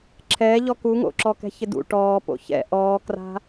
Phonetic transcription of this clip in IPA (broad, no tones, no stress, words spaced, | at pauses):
ǁʰɛːʎɔ kuŋo̰ǁɔkɛ̤ çɪdṵ ʈɔː po̰çɛ̰ ʔɔːkra̤